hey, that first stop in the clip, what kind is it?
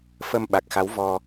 implosive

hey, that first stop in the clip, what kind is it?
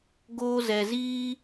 plain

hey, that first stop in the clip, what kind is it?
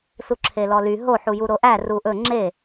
click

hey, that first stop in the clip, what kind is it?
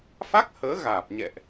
plain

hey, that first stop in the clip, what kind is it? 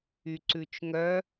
click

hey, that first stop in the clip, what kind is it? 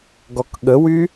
plain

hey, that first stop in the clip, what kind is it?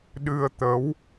implosive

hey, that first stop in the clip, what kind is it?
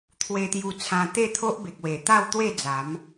aspirated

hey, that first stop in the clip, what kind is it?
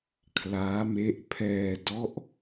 aspirated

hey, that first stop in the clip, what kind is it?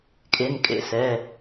ejective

